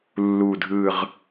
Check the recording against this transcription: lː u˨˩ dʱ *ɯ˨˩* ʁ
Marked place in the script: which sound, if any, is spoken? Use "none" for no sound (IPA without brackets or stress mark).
ɯ˨˩